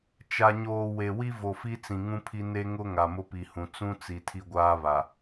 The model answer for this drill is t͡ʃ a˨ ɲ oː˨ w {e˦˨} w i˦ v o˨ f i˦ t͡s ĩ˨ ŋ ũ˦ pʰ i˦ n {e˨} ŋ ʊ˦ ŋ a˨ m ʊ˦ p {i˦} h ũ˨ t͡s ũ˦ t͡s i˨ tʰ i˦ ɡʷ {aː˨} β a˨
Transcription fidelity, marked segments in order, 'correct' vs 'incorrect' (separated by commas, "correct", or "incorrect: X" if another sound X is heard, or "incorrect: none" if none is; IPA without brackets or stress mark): incorrect: e˨, incorrect: e˦, incorrect: i˨, incorrect: aː˦